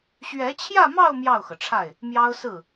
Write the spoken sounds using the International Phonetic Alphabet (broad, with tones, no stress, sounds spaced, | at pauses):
ɕ ɥ ɛ˧˥ t͡ɕʰ j ä˥˧ m ɑ˥˧ ʊ̯ m j ɑ˥˩ ʊ̯ x ɤ˩ ʈ͡ʂʰ a˥˩ ɪ̯ | m j ɑ˥ ʊ̯ s ɹ̩˥˩